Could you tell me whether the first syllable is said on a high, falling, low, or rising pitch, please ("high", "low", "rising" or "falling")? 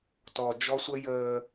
low